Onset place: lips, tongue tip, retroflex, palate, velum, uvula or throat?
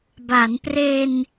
lips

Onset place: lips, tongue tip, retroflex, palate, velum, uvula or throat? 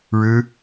retroflex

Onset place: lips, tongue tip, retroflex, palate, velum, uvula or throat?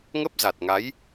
velum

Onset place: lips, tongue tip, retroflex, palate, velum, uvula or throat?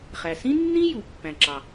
uvula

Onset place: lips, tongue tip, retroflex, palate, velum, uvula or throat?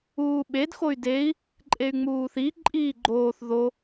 lips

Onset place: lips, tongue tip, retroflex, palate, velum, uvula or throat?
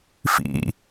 lips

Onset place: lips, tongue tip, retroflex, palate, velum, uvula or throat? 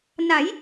tongue tip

